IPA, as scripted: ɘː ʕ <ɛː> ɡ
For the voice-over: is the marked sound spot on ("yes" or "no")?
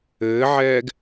yes